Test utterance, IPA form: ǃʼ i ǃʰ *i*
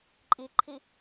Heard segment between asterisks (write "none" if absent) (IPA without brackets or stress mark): i